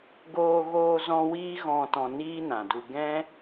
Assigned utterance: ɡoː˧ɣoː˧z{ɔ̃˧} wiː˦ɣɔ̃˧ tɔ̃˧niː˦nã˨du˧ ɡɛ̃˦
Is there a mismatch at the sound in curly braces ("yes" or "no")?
no